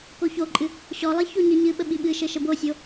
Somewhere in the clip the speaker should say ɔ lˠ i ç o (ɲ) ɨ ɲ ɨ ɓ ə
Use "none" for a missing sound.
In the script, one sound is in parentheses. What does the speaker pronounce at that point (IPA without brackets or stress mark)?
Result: ɲ